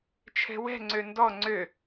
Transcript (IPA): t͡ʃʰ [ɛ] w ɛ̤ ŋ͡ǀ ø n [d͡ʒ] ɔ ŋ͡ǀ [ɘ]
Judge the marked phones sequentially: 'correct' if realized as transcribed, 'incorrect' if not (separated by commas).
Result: incorrect, incorrect, incorrect